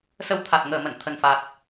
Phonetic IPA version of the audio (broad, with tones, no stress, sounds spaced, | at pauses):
s ə˧ w t̪ʰ a˨˩ t̚ ŋ əː˨˩ m ə̰˧˨ n t̪ʰ ə˨˩ n f a˨˩ t̚